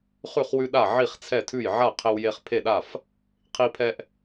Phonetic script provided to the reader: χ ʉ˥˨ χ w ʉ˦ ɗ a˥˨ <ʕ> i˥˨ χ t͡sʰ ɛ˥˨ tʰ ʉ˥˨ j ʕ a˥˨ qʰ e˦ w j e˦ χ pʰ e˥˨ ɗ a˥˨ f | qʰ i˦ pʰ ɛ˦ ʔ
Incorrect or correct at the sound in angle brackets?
correct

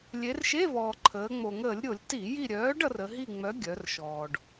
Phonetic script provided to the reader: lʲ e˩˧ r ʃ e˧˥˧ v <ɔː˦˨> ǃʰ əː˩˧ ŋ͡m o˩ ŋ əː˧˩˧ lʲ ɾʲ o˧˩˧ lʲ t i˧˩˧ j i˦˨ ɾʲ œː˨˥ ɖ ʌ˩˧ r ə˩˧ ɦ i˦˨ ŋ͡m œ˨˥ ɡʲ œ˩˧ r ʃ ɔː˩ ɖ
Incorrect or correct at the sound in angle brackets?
incorrect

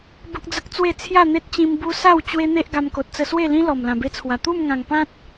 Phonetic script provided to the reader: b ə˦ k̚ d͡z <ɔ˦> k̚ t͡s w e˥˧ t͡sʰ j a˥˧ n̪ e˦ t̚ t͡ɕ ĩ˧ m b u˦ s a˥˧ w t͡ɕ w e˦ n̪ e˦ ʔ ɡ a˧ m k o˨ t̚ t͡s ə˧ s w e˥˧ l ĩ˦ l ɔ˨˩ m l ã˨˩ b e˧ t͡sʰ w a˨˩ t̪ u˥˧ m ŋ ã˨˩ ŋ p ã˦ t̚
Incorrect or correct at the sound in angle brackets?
incorrect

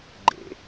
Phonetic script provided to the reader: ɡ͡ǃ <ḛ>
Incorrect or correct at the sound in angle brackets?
correct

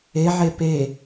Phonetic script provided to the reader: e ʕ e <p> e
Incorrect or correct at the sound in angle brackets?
correct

